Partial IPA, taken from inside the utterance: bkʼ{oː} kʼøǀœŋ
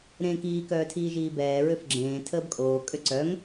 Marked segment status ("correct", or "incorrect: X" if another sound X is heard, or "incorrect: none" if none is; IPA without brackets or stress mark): correct